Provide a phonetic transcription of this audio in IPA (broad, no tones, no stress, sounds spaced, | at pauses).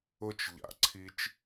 ʊ t͡ʃ ʎ a̰ ǀʰ i t͡ʃ